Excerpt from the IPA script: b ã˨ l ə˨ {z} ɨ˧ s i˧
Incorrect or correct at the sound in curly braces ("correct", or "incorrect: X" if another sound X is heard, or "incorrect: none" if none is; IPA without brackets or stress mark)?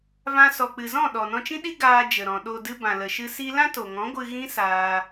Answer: incorrect: ʃ